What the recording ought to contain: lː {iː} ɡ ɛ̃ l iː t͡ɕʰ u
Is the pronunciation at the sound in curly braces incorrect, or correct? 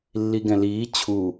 incorrect